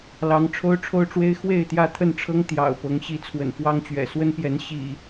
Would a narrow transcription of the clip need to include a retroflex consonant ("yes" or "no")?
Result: yes